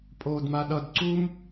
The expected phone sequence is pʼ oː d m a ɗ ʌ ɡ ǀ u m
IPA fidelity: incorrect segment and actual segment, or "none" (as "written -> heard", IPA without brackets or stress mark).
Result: ɡ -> d